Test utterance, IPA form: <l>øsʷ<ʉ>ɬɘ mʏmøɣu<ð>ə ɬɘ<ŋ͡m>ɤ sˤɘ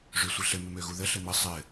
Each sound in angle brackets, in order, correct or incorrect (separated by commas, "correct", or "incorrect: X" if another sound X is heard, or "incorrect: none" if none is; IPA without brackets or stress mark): incorrect: ʐ, incorrect: ɘ, correct, incorrect: m